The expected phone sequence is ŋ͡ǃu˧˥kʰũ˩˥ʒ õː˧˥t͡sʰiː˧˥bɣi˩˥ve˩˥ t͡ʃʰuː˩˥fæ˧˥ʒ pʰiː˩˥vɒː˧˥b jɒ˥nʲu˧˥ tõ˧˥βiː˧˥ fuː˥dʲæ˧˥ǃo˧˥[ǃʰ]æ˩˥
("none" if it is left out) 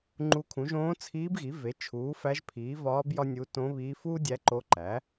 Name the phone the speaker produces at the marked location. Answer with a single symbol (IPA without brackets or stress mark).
ǃ